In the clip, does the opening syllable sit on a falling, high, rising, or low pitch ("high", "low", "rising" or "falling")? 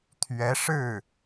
rising